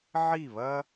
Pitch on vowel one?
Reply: falling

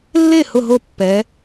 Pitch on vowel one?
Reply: falling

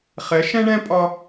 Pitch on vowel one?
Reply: rising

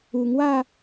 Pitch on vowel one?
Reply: low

